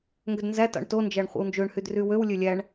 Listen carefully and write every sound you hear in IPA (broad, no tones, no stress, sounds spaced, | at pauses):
ŋ ɡ ø d n z æ t ɑ̰ ɳ t o n d͡ʒ æ ɳ χʷ ḭ w n d͡ʒ ø ɳ h y d r y w ø w lʲ ø lʲ æ ɳ